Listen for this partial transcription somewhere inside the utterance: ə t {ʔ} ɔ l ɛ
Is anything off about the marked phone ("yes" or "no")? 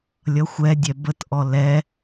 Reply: no